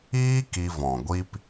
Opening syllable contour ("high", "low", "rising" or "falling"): high